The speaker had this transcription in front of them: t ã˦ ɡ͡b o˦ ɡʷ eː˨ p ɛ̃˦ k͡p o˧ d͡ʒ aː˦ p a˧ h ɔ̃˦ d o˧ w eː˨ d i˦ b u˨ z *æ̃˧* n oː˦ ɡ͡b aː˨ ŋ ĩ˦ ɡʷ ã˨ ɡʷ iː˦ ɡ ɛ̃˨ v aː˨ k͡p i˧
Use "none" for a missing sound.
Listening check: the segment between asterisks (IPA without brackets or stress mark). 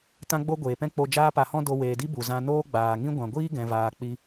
ã˧